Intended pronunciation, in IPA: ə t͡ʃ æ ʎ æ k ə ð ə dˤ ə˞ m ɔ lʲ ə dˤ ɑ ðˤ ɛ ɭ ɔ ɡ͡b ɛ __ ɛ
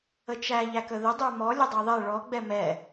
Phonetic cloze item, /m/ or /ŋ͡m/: m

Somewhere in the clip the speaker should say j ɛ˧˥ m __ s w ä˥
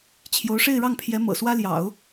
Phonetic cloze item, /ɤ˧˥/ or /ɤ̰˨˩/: ɤ̰˨˩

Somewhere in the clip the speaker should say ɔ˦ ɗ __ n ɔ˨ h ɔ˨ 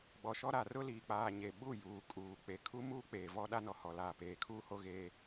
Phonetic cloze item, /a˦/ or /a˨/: a˦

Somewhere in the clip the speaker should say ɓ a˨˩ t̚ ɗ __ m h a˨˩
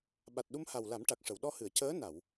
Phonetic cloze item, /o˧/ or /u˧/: u˧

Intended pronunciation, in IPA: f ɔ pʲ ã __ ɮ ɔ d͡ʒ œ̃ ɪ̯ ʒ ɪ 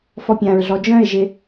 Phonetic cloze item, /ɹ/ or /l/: ɹ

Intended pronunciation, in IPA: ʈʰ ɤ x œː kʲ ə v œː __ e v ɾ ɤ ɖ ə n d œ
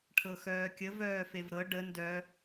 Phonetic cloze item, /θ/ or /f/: f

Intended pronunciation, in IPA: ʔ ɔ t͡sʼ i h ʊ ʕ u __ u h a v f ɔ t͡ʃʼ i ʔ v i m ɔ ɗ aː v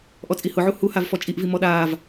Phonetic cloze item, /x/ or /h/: h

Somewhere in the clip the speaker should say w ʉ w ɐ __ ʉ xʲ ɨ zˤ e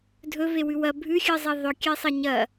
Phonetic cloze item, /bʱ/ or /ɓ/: bʱ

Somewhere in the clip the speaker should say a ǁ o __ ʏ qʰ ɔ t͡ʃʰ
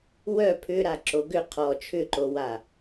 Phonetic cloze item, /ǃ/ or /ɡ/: ɡ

